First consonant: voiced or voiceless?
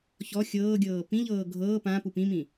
voiceless